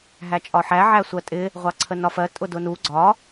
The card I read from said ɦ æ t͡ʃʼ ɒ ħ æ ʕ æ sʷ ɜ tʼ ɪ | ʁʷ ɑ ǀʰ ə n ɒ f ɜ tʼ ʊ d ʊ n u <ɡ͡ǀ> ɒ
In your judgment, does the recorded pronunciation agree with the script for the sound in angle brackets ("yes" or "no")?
yes